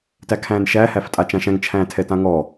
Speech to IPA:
t æ kʰ æ̃ː n ʃ æ h æ f tʼ a t͡ʃ ã ʃ æ̃ ŋ t͡ʃʰ æ̃ː tʰ ɛ t ã ŋ ɔ

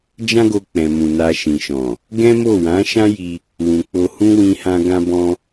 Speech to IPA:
d͡ʒ ã˦ ɡ o˧ k͡p ɛ̃˨ m ũ˨ n a˧ ʃ ĩ˨ ʃ ɔ̃˨ | ɡ ɛ̃˦ m o˦˨ w ã˨˦ ʃ ã˦ j i˧ | w ũ˨ k͡p o˧ h ũ˦ w ĩ˧ h ã˧ ɡ ã˦ b ɔ̃˦

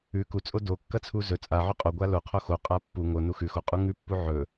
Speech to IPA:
ʉ k u t͡sʼ o d o kː ɐ t͡sʰ u z ɵ t͡sʼ a ʕ ʉ qʼ o ɡʷ a l o qʰ o x o qʼ a pː u ŋ o n u x ʉ x o qʼ u ŋ ʉ pː u ʕ ɵ

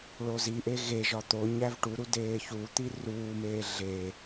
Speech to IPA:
ɭ o z i ʔ e ɣ e ʒ ɒ t̪ o ɲ æ v ʈ u ɾ u d eː ç u t̪ i r uː m eː ɮ e

